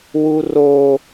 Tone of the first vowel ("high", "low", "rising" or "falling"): high